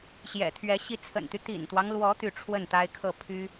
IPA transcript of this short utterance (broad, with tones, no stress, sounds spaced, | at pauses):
ɕ j ɛ̰˨˩ t̪ʰ ɥ ɛ˧˥ ɕ i˧˥ t͡sʰ ə̰˨˩ n t̪ y˦ t̪ ḭ˨˩ n t̪ w ɑ˦ ŋ l w ɔ˧˥ t̪ y˥˧ ʈ͡ʂʰ w ə˥˩ n t̪ a˥ ɪ̯ kʰ ɤ˥˩ pʰ y˥